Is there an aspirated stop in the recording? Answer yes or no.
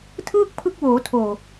yes